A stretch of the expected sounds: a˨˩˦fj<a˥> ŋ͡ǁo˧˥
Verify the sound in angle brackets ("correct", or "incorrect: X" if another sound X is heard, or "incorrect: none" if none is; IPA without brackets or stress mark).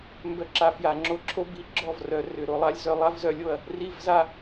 incorrect: a˨˩˦